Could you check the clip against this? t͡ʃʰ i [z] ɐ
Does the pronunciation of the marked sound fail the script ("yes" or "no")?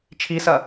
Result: yes